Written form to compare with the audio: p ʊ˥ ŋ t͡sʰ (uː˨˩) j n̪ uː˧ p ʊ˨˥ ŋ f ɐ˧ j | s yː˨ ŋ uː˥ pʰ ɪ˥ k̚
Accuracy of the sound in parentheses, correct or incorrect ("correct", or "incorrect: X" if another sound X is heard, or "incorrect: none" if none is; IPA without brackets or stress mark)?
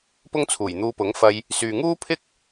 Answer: correct